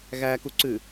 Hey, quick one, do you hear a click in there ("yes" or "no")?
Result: yes